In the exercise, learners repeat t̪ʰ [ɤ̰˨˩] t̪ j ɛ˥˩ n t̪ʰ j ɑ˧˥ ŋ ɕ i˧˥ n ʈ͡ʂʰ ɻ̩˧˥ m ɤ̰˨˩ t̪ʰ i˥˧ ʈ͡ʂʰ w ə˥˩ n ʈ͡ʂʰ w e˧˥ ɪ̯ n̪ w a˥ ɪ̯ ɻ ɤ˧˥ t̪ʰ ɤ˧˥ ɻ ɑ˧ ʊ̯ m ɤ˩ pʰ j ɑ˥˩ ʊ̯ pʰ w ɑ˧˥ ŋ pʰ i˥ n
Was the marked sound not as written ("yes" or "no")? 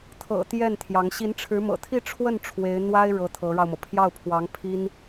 no